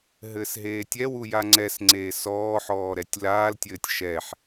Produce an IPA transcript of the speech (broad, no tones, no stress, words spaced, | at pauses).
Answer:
ɦɘːsɦeːtʲɛwu jaŋ͡ǀɛsŋ͡ǀeː sɔːħɔː ɾɛtʲlaːltʲɘːtʲ ʃɛħ